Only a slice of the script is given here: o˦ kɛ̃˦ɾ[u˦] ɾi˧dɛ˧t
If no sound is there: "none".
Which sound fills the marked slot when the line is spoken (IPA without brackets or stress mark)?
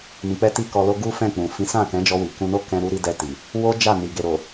u˦